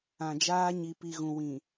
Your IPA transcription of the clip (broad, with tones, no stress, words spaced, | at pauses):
ã˨d͡ʒaː˦ ɲi˨pi˨ɣũ˨ wĩ˨